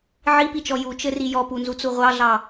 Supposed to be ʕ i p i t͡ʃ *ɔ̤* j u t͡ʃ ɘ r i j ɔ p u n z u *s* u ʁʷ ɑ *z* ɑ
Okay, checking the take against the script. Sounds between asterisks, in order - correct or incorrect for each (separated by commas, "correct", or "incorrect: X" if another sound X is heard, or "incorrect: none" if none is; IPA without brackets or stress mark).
incorrect: ɔ, incorrect: t͡s, incorrect: ɮ